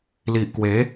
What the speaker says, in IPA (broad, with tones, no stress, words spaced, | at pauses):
li˨ʔkwe˨˦